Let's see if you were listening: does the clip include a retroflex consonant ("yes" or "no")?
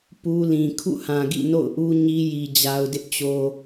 no